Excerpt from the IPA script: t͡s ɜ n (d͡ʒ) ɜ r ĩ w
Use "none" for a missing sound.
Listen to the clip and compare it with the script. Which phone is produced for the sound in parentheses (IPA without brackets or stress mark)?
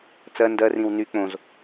d